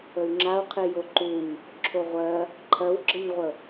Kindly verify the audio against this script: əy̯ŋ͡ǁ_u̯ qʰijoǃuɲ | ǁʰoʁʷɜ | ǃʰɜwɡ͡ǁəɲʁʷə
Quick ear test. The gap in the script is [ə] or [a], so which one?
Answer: a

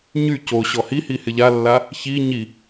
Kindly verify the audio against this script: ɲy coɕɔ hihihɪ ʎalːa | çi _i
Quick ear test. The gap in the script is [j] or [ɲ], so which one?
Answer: ɲ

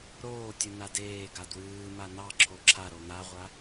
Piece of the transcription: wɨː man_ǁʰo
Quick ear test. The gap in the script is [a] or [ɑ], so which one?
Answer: ɑ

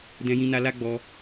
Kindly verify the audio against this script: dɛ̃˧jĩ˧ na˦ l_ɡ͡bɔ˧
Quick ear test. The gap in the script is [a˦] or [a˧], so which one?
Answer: a˦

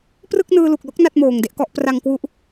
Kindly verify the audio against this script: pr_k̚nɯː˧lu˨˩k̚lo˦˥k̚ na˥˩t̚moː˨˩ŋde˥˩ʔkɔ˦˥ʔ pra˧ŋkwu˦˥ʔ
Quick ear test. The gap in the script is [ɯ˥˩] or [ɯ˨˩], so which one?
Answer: ɯ˥˩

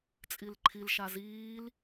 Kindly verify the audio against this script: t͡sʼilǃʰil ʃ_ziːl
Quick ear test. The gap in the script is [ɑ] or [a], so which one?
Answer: a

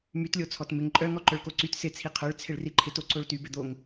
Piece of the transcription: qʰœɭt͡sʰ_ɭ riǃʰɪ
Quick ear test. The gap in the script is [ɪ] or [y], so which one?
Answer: ɪ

